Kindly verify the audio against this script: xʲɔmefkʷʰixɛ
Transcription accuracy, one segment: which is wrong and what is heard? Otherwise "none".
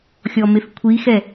none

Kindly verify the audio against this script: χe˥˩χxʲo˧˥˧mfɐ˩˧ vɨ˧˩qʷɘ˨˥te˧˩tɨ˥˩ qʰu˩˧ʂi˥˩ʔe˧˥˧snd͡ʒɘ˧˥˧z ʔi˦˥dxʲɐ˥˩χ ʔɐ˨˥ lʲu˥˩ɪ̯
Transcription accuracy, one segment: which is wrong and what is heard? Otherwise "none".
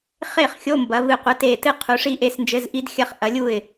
f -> b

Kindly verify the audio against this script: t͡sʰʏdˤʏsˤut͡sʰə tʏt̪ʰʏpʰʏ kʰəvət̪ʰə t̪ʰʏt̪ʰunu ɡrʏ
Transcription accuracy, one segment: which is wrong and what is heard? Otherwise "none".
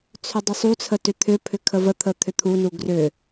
none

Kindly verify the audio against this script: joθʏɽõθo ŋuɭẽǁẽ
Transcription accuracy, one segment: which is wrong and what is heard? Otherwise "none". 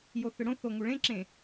none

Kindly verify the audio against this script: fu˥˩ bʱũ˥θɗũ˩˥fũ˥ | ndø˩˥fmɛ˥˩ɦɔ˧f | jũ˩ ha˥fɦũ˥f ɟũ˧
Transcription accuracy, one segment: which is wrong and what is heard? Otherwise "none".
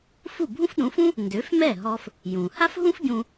θ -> f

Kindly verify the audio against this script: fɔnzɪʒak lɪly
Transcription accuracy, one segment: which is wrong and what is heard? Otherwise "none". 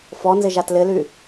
k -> t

